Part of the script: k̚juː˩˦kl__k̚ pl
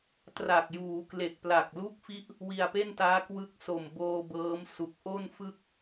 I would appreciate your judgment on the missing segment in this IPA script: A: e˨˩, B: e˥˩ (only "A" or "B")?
A